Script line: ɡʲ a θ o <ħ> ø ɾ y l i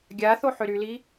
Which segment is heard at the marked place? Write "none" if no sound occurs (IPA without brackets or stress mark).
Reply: ħ